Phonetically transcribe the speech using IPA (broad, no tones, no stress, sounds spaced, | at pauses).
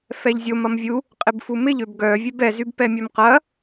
f ɛ ʎ zʲ o m ɐ m vʲ u | qʼ ɪ b f u m ɪ ʎ ø b ɡ œ vʲ ɛ b ɛ z y b p ɛ mʲ œ m q ɐ